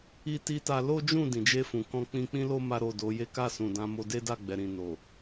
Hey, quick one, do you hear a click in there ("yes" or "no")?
no